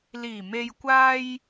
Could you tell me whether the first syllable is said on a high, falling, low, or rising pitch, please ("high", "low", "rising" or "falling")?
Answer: low